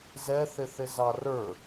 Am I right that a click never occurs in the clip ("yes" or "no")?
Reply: yes